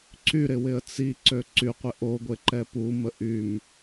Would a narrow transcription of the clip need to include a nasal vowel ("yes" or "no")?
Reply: no